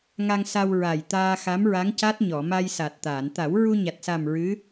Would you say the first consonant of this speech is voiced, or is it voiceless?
voiced